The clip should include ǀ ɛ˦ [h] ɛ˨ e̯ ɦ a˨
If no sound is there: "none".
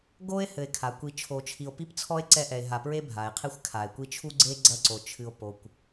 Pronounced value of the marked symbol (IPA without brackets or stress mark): ʔ